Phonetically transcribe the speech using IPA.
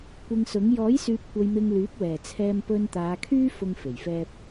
kʷ ɪ˧ ŋ s ʊ˨˥ ŋ j ɔː˨˥ j s yː˨ p̚ kʷ ɐ˨ j m ɪ˧ ŋ l yː˨˥ p̚ w ɛː˨˩ t͡sʰ ɛː˧ m p ɵ˧ n t̪ aː˨˧ kʰ yː˥ f ʊ˧ ŋ f e˨˩ j f ɛː˧ p̚

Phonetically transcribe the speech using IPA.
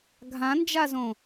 ɡʱ ã n d͡ʒ a z õ

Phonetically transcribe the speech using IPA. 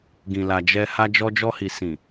ɡ ĩ˨ l a˨ d͡ʒ ɛ˧ h a˧ d͡ʒ ɔ˧ d͡ʒ ɔ˧ h i˨ s ĩ˨

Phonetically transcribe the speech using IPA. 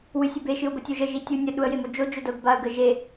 w ɨ sʲ ə b e ʃ ɨ ʊ̯ b ə tʲ o ʒ ə ʒ i tʲ u nʲ ə ɗ u ə̯ j e m o d͡ʒ o d͡ʒ o d ɤ ɡ b a ə̯ ɡ ə ʒ e

